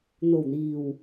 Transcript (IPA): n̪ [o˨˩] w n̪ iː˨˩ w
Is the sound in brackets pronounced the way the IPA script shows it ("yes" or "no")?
yes